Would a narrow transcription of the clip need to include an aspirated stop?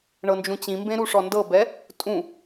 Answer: no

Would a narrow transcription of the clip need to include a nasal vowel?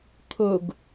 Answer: no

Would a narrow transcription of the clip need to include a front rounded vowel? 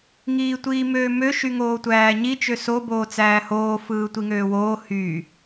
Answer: yes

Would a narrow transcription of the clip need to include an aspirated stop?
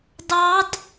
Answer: no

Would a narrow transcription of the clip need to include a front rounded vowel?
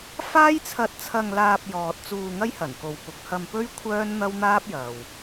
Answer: yes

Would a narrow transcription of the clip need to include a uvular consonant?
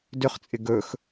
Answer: yes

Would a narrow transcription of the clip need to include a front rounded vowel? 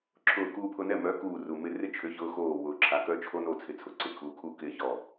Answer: yes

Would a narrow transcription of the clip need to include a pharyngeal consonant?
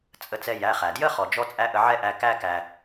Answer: yes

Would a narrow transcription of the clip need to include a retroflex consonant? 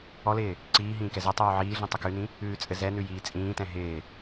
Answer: no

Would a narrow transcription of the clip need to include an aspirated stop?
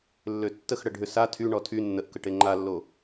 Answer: yes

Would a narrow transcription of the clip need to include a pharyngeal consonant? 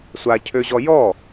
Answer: no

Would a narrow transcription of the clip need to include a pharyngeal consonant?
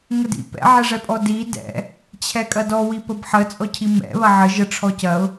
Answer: yes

